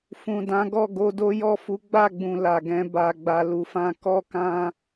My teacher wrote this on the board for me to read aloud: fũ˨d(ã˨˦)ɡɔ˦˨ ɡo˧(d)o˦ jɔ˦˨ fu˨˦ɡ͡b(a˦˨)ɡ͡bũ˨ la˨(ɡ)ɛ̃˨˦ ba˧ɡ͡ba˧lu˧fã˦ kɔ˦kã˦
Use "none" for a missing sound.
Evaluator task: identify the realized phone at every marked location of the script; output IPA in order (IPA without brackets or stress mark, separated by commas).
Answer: ã˨˦, d, a˦˨, ɡ